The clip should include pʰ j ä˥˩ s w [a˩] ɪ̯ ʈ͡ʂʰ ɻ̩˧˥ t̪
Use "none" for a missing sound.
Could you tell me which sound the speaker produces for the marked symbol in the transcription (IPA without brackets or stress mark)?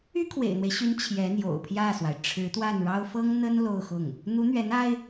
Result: a˩